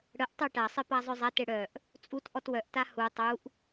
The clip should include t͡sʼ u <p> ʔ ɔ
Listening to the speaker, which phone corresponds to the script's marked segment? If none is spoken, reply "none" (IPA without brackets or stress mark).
t